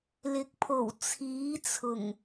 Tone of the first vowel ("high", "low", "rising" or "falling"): rising